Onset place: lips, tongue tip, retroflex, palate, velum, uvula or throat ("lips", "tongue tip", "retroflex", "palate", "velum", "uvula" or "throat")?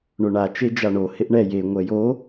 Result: retroflex